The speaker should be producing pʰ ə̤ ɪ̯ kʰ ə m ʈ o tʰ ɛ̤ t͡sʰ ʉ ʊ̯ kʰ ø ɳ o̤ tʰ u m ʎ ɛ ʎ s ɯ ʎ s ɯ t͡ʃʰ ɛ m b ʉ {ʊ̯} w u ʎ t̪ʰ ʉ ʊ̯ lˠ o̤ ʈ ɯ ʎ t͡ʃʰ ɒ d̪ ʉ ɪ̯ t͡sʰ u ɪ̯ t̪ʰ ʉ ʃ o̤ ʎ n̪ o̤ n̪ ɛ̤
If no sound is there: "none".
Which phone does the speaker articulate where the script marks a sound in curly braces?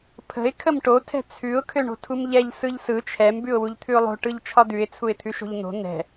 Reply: ʊ̯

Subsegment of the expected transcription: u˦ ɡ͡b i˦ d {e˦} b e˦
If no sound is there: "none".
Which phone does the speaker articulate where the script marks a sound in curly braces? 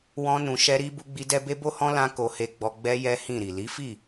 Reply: ɛ˦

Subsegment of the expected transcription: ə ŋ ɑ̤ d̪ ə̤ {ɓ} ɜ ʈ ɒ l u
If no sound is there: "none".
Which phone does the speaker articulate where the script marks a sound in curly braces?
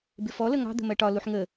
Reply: m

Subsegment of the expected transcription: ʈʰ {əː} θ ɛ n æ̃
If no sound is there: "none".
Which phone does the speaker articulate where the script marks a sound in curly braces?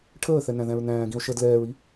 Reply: əː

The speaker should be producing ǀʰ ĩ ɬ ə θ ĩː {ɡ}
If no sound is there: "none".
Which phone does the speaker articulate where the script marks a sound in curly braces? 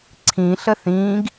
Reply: ɡ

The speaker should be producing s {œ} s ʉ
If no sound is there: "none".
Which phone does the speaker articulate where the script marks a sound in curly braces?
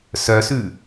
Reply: œ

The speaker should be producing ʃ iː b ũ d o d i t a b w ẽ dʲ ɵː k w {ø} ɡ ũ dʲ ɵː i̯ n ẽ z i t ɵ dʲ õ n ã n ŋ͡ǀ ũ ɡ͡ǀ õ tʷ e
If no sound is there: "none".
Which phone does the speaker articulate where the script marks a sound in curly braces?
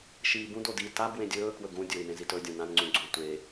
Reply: ɵ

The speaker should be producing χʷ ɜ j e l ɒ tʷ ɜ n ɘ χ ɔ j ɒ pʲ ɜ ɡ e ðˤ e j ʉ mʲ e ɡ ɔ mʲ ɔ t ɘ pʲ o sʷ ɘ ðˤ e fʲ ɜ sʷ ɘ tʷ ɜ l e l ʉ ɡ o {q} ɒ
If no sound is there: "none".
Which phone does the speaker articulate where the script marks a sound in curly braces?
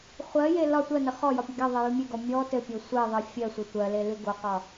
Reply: q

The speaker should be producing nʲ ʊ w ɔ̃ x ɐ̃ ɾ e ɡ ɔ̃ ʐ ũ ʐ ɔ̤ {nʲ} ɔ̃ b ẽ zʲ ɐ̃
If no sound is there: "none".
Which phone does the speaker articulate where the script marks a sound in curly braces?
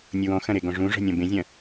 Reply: nʲ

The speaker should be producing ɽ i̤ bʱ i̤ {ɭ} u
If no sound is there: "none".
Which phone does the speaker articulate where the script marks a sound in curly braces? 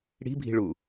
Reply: ɭ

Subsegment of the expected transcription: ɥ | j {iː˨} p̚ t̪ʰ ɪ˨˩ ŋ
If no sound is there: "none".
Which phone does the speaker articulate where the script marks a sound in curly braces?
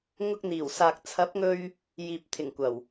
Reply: iː˨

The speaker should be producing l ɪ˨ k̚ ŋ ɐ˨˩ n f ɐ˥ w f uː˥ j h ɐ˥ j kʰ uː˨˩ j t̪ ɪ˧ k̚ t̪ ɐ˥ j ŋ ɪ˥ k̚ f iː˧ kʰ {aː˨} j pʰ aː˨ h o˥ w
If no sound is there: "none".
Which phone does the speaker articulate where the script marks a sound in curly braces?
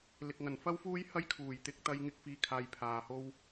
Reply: aː˨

